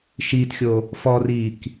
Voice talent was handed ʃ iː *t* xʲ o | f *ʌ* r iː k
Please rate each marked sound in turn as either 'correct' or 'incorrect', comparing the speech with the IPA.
correct, incorrect: ɔ

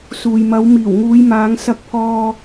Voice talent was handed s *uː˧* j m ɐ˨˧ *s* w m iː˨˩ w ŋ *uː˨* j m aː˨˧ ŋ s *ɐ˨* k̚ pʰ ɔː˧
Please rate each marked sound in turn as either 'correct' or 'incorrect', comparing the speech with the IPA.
incorrect: uː˨, incorrect: none, incorrect: uː˨˧, incorrect: ɐ˧

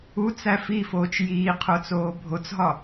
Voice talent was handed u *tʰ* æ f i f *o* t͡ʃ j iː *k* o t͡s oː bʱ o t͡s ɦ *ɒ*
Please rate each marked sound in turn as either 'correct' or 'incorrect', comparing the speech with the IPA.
incorrect: t͡s, incorrect: oː, incorrect: qʰ, correct

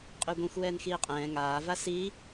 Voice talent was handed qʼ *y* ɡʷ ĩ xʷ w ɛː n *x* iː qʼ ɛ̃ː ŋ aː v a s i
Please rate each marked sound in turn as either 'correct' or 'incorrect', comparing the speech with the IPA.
correct, correct

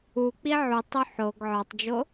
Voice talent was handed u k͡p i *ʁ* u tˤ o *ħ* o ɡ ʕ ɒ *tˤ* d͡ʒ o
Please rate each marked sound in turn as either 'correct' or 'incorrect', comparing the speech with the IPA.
incorrect: ʕ, correct, correct

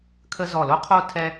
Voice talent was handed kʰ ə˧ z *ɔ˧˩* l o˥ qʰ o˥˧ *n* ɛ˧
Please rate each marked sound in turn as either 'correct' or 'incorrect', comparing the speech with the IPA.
correct, incorrect: tʰ

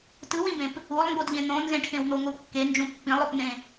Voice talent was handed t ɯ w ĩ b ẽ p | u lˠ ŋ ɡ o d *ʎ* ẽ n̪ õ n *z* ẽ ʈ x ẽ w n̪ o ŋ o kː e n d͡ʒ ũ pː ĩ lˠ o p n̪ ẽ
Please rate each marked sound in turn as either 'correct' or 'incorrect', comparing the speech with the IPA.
correct, correct

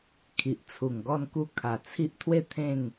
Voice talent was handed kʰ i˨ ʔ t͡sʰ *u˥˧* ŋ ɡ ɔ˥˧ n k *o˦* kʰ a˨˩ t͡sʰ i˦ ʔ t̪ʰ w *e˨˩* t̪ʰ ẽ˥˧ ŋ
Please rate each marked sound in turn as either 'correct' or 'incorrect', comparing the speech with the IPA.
incorrect: u˨˩, incorrect: u˦, incorrect: e˥˧

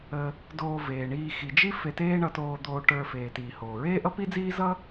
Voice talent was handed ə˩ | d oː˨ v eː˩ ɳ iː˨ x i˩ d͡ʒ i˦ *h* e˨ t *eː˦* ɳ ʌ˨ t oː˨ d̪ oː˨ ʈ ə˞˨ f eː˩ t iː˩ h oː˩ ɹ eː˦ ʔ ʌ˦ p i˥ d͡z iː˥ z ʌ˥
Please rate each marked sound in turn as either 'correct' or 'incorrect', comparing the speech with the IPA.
incorrect: f, correct

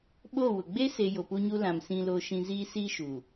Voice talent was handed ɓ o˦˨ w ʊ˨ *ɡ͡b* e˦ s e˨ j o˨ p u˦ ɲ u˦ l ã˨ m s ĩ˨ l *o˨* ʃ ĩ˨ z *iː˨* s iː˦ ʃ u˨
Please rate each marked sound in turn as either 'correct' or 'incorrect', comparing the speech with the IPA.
correct, correct, incorrect: iː˦

